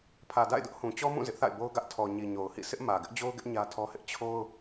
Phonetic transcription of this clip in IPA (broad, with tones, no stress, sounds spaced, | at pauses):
pʰ ä˨ d a̰˦˨ ɪ̯ d ʊ˦ ʔ h ũ˨ t͡ɕ ɔ˦ m ũ˦˨ z ɪ˦ ʔ θ a̰˦˨ ɪ̯ b o˦ ʊ̯ ɡ ä˦ ʔ tʰ ɔ˨ ɲ i˨ ɲ o˨ ʊ̯ h ḭ˦˨ sʰ ɪ˦ ʔ m ä˨ ɡ ɪ˦ ʔ d͡ʑ o˦ ʊ̯ ɡ ɪ˦ ʔ ɲ ä˦ tʰ ɔ˦ h ɪ˦ ʔ t͡ɕʰ o˦ ʊ̯